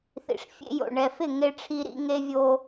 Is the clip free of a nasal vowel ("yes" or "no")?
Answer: yes